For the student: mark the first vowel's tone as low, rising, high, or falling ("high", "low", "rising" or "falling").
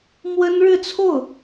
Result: high